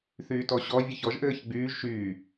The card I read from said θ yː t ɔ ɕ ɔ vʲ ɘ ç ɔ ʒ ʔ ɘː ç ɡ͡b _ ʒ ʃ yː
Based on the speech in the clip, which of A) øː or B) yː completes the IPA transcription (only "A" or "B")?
B